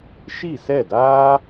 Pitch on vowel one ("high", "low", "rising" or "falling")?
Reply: falling